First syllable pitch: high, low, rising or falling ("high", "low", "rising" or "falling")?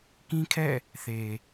high